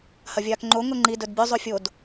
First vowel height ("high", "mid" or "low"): low